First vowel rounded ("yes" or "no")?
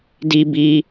no